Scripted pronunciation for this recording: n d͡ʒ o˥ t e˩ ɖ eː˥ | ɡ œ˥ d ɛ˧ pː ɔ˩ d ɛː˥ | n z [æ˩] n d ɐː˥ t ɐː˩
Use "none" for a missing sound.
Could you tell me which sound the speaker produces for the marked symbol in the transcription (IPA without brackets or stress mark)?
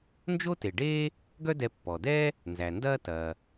æ˩